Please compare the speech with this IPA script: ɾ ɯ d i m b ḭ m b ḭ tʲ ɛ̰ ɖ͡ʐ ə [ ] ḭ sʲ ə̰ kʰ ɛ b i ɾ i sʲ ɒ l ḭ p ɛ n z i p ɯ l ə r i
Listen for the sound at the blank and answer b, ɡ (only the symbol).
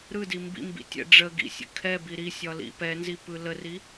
ɡ